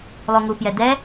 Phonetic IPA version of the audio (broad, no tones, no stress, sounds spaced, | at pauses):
lˠ u ŋ u p j ɛ d ɛ